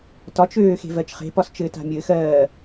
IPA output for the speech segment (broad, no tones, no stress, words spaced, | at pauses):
tɒt͡ʃøː xe̤vɜt͡ʃχe̤pɒs t͡ʃɘːta̤mʲɘːxɜː